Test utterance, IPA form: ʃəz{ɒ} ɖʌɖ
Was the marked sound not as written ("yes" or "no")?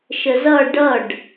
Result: yes